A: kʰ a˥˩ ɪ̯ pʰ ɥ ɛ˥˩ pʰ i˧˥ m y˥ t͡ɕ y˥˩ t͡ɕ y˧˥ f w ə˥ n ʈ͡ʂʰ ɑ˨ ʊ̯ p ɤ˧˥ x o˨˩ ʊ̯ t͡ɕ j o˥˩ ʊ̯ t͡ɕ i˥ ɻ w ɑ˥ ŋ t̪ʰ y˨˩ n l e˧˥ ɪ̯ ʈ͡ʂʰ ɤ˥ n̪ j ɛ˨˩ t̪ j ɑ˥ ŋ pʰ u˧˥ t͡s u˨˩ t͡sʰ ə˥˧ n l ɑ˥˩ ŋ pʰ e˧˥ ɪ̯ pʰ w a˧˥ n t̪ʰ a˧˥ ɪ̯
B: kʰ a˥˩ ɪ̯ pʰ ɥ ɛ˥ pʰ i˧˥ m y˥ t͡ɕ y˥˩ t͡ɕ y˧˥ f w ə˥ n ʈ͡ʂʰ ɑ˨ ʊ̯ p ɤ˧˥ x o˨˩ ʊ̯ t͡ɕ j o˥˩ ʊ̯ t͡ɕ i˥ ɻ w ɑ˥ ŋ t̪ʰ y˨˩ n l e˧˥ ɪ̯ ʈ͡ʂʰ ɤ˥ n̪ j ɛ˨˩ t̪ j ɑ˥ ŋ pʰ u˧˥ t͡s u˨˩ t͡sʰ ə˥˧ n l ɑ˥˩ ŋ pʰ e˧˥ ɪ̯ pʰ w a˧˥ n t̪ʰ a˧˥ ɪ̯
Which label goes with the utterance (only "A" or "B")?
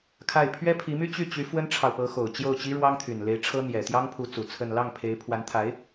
B